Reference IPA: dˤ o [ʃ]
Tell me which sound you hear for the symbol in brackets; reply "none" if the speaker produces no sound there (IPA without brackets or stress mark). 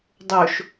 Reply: ʃ